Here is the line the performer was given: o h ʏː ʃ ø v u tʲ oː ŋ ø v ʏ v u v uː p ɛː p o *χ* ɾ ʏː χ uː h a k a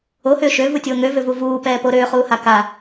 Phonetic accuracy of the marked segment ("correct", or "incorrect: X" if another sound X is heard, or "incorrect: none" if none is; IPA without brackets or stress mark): incorrect: none